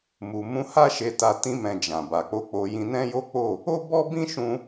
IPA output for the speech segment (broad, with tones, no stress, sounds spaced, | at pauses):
m u˨ m ũ˧ h a˦ ʃ e˧ t a˧ t ĩ˧ m ɛ̃˨ d͡ʒ ã˨ b a˨ k͡p o˨˦ k͡p o˧ j ĩ˧ n ɛ̃˦ j o˦ k͡p o˦˨ | o˦ b ɔ˦ b ĩ˦ ʃ ũ˧